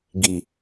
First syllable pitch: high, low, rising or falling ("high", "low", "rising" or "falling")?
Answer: low